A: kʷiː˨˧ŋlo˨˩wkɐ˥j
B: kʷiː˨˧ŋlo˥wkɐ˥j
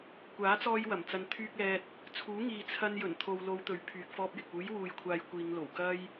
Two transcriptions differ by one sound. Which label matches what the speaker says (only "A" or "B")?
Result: A